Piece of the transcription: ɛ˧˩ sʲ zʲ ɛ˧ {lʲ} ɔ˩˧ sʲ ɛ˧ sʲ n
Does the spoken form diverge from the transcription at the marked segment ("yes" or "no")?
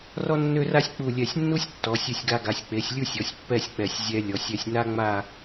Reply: no